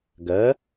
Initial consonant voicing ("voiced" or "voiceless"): voiced